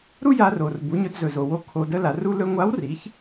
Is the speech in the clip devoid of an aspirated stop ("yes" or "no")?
no